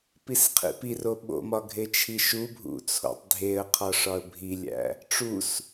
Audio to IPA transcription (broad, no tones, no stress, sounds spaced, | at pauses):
p i s qʰ ḭ p i r o ɓ o̰ m ɒ ɡʱ e t͡ʃʰ i ʃ u bʱ ṵ t͡sʰ o̰ tˤ dʱ e ə̯ qʰ ɒ ʂ ɒ ə̯ bʱ i lʲ æ̰ | ʈ͡ʂ u s